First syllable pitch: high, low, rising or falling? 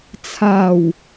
low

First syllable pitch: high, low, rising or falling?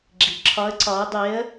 low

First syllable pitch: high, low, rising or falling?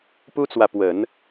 high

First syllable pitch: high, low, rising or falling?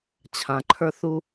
low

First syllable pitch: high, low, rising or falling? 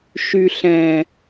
low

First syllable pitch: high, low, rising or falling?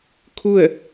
falling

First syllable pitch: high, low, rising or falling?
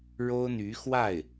high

